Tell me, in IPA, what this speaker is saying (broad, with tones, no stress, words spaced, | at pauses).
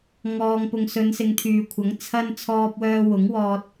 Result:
ŋɔː˨ŋpʊ˨ŋsɵ˨˧n sɪ˨˧ŋt̪ʰyː˨kʷʰɐ˨˥ŋ t͡sʰɐ˧n t͡sʰɔː˧p̚wœː˧wʊ˨˥ŋwɔː˧t̚